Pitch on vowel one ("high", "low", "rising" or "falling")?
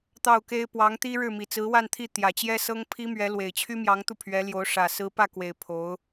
falling